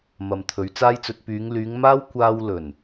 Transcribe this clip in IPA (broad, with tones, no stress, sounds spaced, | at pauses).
m ɐ˨ m t̪ʰ ɵ˨˧ ɥ t͡s aː˥ j t͡s ɵ˧ t̚ p yː˨˧ ŋ l yː˨˧ ŋ m aː˥ w kʷ aː˧ w l ɵ˨˩ n